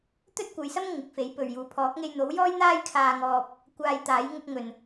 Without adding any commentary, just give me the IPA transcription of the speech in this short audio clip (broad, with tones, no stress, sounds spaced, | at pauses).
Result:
t̪ ɵ˥ t̚ kʷ ɐ˨˧ j s ɐ˥ m ŋ ɪ˨˥ k̚ f e˨˥ j p ɵ˨ ɥ j uː˨˥ pʰ ɔː˨˥ k̚ ŋ e˧ j n̪ o˨˥ w j ɔː˥ j n̪ aː˥ j kʰ aː˧ ŋ ɔː˧ p̚ | kʷ aː˧ j t̪ aː˨˥ j ŋ ʊ˧ k̚ ŋ ɵ˨ n